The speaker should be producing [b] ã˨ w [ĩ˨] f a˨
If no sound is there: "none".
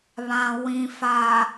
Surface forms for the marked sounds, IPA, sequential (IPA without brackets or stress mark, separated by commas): β, ĩ˨